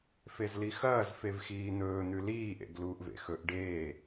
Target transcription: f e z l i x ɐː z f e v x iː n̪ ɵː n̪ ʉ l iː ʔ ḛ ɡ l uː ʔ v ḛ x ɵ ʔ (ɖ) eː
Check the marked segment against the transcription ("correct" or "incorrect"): correct